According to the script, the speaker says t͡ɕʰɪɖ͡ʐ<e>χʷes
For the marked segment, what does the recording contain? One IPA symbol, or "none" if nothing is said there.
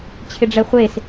ɛ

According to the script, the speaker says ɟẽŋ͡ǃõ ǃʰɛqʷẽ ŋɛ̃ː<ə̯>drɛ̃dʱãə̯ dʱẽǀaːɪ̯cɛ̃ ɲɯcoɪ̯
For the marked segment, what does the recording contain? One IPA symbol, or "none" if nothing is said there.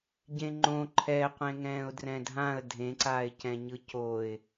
ʊ̯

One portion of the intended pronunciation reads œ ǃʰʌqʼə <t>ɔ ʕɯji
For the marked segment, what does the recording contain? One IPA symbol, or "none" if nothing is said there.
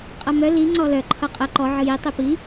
ǃ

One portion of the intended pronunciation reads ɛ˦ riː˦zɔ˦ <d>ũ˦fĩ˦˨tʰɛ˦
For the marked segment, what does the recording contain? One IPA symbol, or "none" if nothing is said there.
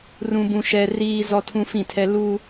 tʰ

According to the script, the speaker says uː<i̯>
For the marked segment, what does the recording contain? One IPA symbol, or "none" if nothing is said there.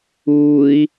i̯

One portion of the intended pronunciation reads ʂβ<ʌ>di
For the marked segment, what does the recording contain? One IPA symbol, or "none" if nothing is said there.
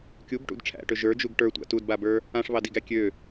ɑ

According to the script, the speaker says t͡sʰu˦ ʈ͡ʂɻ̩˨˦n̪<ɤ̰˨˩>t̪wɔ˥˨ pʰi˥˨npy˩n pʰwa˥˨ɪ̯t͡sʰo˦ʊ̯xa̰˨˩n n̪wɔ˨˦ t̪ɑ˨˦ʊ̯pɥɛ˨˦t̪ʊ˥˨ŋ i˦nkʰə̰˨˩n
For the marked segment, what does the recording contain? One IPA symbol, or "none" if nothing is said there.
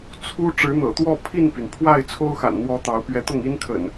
ɤ̰˨˩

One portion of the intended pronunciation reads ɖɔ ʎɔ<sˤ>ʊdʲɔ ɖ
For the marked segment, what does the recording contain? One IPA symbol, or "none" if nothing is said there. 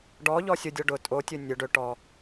sʲ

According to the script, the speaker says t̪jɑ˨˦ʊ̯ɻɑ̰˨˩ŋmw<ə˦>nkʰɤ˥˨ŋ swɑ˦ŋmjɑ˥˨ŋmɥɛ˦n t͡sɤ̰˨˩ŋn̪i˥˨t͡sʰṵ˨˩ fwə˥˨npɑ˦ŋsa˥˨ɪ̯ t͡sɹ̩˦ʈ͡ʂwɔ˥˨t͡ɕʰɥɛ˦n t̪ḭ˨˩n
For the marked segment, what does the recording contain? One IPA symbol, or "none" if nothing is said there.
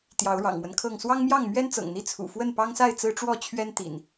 ə˦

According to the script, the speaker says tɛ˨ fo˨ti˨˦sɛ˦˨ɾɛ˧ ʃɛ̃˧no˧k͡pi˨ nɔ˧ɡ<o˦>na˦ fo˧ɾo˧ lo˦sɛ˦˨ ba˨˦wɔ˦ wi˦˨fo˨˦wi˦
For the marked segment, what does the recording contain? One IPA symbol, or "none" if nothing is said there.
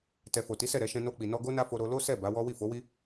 o˦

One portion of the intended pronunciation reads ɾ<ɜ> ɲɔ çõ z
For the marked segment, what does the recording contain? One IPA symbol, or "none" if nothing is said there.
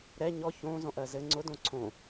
ɛ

